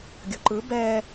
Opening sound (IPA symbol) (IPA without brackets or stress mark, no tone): ɡʲ